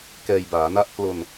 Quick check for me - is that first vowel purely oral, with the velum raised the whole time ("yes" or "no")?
yes